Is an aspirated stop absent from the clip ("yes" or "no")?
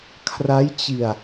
no